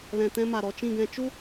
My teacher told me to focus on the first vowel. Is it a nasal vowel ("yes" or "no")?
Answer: yes